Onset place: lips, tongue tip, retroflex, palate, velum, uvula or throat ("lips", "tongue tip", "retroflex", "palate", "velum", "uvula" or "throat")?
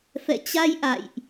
lips